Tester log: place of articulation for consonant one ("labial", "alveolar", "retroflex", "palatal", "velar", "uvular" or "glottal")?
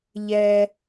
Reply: palatal